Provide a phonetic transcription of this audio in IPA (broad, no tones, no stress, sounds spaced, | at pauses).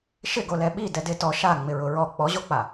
ʃ ɪ ɡ o l ɛ ɓ i d ɛ d ɪ t ɔ ʃ a ŋ͡m ɪ ɹ ʊ ɹ ɔ k͡p ɔ ʑ o k͡p a